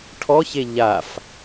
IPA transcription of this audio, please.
ʈʰ ɔ ç e ʎ a f

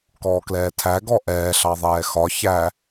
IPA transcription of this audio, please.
k ɔː k l ɛː tʰ æ ɡ ɔ ʔ ɛː ɬ ɑ ðˤ ɛː x ɒ ç æ

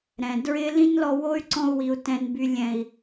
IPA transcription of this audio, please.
ɾ ɛ̃˨ d ɹ ɪ˦ l ĩ˦ n l ɔ˧ w o˦ y̯ ǀ ɔ̃˧ u̯ w i˨ u̯ t ɛ̃˨ n b y˨ lʲ ɛ̃˨ i̯

